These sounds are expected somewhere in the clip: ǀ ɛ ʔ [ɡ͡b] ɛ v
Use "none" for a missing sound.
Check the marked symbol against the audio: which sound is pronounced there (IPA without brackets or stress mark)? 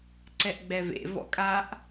ɡ͡b